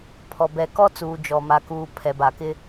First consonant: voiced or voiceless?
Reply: voiceless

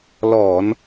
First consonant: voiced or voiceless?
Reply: voiced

